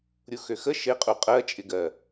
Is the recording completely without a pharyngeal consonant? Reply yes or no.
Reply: yes